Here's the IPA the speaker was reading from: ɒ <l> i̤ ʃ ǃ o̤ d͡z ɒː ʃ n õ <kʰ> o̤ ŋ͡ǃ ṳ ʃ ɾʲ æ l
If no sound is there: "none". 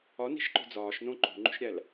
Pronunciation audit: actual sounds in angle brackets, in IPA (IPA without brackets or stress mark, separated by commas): n, ǃ